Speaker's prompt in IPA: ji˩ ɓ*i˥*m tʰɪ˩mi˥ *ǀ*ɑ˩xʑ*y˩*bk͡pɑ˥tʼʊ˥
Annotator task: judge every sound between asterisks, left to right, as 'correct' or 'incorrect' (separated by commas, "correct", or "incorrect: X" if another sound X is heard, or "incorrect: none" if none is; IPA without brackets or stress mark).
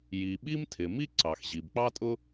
correct, correct, incorrect: i˩